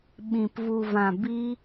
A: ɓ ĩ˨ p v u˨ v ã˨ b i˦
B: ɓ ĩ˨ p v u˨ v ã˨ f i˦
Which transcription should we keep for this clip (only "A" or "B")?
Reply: A